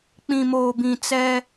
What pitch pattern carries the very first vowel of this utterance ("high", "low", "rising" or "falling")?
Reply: low